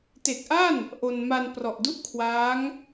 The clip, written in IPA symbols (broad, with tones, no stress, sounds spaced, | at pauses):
t e˨˩ k̚ ʔ a˥˩ n | ʔ o˧ n m a˧ n p r ɔ˨˩ ʔ d u˥˩ ʔ kʰ w aː˦˥ ŋ